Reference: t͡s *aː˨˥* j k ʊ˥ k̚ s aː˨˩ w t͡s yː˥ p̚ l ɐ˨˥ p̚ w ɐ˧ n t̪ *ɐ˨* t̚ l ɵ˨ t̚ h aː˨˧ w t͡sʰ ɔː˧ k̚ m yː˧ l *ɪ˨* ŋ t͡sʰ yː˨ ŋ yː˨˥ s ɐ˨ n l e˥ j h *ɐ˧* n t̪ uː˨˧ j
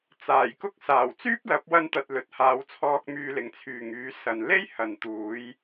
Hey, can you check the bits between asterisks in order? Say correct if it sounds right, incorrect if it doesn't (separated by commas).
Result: incorrect, correct, correct, incorrect